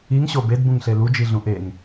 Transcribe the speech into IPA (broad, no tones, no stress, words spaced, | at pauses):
iŋɕo bedbũŋɬe lud͡ʒiɮũ ʔeŋ